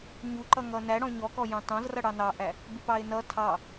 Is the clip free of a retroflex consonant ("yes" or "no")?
no